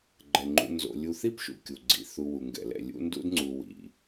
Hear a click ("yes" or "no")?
yes